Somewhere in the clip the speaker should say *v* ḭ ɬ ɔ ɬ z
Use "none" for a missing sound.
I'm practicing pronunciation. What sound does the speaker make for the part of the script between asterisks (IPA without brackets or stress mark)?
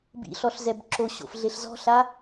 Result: b